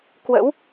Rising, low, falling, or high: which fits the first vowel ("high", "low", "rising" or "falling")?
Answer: rising